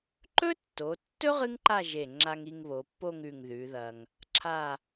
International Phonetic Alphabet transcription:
ǃ ɵ˥ tː o˩˧ tː ɵ˥ ʁ ɨ˥ ŋ ǃ a˥˧ ʒ e˧˩ ŋ͡ǁ a˧ ŋ i˧ ŋ β o˩˧ pː o˥˧ ŋ ʉ˧˩ ŋ ð ʉ˩˧ ð ɐ˧ ŋ | ǁʰ a˥˧

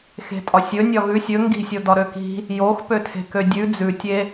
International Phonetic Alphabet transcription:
x e̤ tʼ ɒ sʲ ɵ nʲ ɒ ɣ ʉ sʲ ɵ ŋ ɡ i̤ sʲ o d ɒ ɾ ø k i̤ | j o x p ø tʰ e̤ k ø dʲ ʉ d͡z ʉ tʲ e

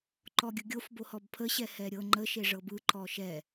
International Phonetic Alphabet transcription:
ǃ ɔ ɡʲ ɯ ɡʲ o f b o h ɔ b pʰ ə ɕ ɛ h ɛ ɾʲ ɤ ŋ͡ǃ ə ʃ e ʐ ɤ b ɯ ǃ ɔ ʃ ɛ

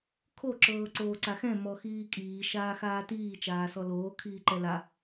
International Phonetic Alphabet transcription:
kʰ o ǁ ɤː ǀ oː ǀ a x ɛ̃ m ɔ x iː kʼ iː ʃ aː x aː t iː t͡ʃ aː s ɔ l oː kʰ iː ǃ ɛ l a

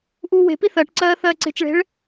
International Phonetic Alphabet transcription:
ʔ uː w e̤ p i θ ɜ ʈ ǀ ɜː θ ɜː ǀ e̤ t͡ʃ ɭ e̤ ɭ

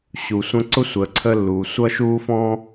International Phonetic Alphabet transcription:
ɕ u˩ sʷ ə̃˥ ǀ ʊ˥ sʷ əː˩ ǀʰ ə˥ lː uː˩ sʷ ʌ˥ ʃ uː˥ f ɔ̃˥

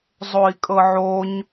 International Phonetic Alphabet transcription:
zˤ o i̯ kʼ ɤ ʕ o ɲ

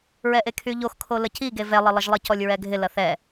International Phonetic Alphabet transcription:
ɹ ɛ ʔ e kʰ y ʎ o x kʰ o l ə c i ɡ e v ɛ lˠ ə lˠ ə ʒ lˠ i c ɔ lʲ ɹ ɛ ɡʱ ɪ l ɐ θ ɛ

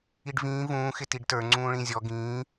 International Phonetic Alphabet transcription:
i ɖ v ĩː v ũː x ɪ t i ɖ t ə˞ ŋ͡ǀ ũː ɭ ĩ zʲ ɔ ɡ ĩː

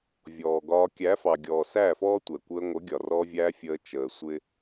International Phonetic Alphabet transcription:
vʲ ɔː˨ ɡ ɒː˧ kʲ æ˨˦ f ɑ˨ ɡʲ ɔː˨ s æː˦˨ f ɔː˦ tʷ ɛ˨ kʷ əː˧ ŋʷ ə˨˦ ɡʲ ɒ˨ r ɔ˧ vʲ æː˧ fʲ əː˧ t͡ʃ əː˨ sʷ ɪ˦

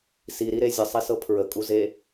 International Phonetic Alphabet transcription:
s i ɾ i ɾ e zʲ ə sˤ i s ɤ pʰ ɹ ə kʼ u z e

